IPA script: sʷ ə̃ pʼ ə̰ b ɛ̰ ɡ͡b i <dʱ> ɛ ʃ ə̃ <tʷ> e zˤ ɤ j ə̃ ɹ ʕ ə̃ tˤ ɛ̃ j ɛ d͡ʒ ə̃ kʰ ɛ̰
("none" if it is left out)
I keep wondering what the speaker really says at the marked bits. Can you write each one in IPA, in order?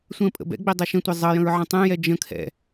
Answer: dˤ, tʷ

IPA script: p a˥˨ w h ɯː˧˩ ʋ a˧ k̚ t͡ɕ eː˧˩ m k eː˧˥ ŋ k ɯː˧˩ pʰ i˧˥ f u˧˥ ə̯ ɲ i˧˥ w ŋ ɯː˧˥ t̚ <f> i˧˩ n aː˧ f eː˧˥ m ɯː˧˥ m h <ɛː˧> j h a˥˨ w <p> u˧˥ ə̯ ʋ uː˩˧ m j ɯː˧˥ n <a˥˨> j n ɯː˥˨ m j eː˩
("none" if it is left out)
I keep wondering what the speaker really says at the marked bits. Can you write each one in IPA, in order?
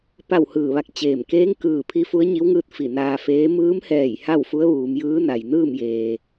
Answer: f, ɛː˧˩, f, a˩

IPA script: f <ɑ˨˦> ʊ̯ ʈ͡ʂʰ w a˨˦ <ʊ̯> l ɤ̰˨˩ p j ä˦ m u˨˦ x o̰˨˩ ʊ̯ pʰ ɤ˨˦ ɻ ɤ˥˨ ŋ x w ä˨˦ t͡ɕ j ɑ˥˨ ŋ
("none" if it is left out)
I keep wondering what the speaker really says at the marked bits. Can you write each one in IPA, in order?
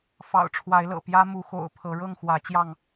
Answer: ɑ̰˨˩, ɪ̯

